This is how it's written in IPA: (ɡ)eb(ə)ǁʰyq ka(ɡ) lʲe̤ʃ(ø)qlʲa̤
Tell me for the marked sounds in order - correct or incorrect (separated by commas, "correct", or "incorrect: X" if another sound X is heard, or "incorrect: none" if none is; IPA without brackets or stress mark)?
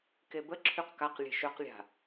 incorrect: k, correct, incorrect: q, correct